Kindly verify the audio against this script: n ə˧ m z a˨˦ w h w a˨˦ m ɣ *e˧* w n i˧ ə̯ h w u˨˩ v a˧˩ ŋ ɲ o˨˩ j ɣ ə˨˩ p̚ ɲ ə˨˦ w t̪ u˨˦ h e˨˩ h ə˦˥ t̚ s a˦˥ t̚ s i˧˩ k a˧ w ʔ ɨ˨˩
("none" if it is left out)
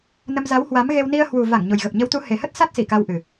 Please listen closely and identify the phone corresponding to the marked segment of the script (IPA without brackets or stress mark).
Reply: e˧